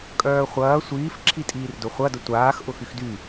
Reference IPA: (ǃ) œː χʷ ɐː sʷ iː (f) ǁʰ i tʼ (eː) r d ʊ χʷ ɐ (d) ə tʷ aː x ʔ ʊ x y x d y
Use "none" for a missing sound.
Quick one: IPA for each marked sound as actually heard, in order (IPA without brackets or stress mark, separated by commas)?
kʼ, f, iː, d